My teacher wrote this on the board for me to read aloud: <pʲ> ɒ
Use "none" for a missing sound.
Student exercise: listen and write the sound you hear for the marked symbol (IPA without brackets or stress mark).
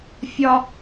fʲ